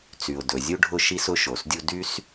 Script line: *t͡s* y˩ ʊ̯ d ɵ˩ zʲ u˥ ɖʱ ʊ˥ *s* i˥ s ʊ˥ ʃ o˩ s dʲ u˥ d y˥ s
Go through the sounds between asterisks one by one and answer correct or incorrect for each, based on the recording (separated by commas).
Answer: correct, incorrect